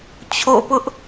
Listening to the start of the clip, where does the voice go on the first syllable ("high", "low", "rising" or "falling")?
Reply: falling